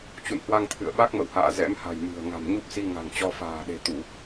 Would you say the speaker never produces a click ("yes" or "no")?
yes